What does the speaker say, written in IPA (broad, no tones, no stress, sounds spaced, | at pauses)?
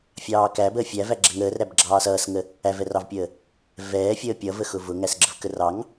fʲ ɑː k æ b əː fʲ æ v æ ɡ͡ǁ ɛ ŋ əː r ɾ æ b ɡ͡ǁ ɑː s ʌː s ŋ ə | æ v ɛ r ɑ v pʲ əː | v ɛː fʲ əː pʲ ʌ v ə x ʊ v ʊ ŋ æ s ɡ͡ǁ ə v k ə r ɑ ŋ